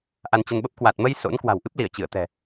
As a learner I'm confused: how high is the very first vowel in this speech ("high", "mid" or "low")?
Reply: low